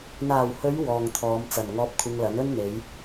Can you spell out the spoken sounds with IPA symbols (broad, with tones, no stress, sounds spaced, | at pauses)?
n̪ aː˨˩ w h ɵ˨˧ ɥ w ɔː˨ ŋ t̪ʰ ɔː˨˧ m t͡s ɐ˨˩ n ŋ ɔː˧ p̚ kʷʰ ɪ˧ ŋ l ɐ˨˥ n ɵ˥ n n̪ e˨˧ j